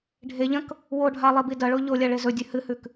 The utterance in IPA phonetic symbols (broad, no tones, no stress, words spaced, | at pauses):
ɖʱeʎɐ̃k | woɖʱa lˠibidɐɭo ʎo lʲaɭezɵdʲʉ hɨhʉk